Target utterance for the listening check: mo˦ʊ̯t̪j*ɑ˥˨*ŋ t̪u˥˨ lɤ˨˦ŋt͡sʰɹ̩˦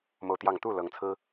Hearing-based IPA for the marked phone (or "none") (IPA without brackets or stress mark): ɑ˥˨